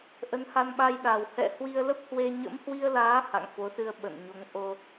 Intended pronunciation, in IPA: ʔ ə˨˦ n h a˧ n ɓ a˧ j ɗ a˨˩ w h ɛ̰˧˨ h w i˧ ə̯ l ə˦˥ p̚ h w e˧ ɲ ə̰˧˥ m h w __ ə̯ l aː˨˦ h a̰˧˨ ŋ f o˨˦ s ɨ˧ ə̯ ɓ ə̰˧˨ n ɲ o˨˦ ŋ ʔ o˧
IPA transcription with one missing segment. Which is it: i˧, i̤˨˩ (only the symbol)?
i˧